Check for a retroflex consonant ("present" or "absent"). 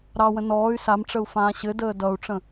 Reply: present